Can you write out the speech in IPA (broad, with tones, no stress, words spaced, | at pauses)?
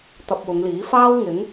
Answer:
t̪ɐ˧p̚wʊ˨˧ŋliː˨˥faː˥w ŋɪ˨˥ŋ